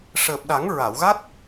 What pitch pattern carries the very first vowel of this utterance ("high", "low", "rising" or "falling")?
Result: low